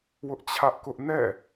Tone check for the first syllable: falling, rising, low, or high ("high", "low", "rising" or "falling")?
high